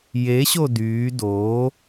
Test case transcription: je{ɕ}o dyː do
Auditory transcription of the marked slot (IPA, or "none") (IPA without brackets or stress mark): ɕ